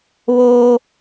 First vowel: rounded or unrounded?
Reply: rounded